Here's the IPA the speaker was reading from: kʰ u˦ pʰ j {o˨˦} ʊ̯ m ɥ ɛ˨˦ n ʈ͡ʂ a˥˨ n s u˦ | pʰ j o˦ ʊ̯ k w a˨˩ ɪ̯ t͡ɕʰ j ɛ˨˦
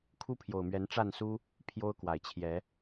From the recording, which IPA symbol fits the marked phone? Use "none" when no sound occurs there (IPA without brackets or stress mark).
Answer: o˨˩